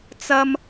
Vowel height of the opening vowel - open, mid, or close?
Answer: open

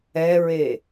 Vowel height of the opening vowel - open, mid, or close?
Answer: mid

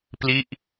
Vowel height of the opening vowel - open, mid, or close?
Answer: close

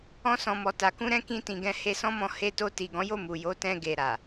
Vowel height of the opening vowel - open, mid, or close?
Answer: mid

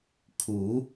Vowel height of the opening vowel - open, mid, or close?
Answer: close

